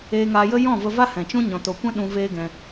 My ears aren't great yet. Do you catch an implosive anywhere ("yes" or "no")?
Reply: yes